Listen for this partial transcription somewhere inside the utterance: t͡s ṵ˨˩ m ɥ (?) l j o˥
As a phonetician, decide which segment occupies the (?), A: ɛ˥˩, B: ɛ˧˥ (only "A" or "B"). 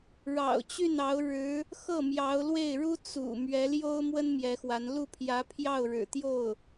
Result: B